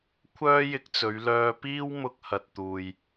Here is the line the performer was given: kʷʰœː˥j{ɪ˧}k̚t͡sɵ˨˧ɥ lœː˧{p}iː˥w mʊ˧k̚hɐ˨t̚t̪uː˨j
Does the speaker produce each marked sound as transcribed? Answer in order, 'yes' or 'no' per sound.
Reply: yes, yes

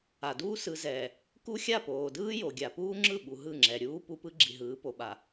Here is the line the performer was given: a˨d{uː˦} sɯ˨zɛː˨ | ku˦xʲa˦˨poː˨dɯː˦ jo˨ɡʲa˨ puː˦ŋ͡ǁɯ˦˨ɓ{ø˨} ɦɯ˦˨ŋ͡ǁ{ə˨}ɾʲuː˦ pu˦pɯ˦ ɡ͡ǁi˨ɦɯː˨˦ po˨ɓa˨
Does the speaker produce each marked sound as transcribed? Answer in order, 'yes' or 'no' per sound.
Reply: yes, no, no

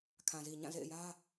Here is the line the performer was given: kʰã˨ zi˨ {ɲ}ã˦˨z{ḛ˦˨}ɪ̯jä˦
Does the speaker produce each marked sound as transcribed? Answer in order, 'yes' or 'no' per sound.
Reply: yes, yes

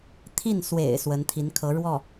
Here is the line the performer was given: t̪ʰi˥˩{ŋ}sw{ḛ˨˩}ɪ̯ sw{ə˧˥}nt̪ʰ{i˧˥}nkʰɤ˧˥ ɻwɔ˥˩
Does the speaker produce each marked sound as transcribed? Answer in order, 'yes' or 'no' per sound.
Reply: no, yes, yes, yes

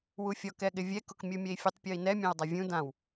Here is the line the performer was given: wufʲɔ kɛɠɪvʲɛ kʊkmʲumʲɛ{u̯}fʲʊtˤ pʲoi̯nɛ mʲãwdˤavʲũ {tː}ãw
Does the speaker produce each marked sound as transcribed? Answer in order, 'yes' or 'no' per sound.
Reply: no, no

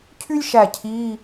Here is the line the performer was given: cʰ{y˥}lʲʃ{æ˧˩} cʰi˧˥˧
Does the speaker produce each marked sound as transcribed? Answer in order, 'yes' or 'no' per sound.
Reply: yes, yes

